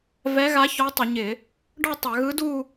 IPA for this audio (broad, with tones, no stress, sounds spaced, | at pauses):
v ɛ˧˥ ɣ a˧˥ ç ɔ˧˥ tˤ ʏ˧˩˧ ɲ ɪ˧˩˧ | ɖ ɔ˥˧ tˤ a˧˩˧ ɣ ɯ˧˥ d u˥˧